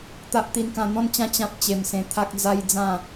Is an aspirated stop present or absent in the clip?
present